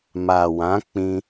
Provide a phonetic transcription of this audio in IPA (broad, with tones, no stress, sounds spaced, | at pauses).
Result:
m a˨ w ã˨˦ k͡p ĩ˧